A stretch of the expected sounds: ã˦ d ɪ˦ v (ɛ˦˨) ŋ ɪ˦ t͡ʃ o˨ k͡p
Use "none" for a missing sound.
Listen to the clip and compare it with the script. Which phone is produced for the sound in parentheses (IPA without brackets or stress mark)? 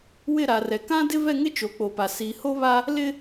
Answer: ɛ˦˨